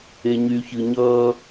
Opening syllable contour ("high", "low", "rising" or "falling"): low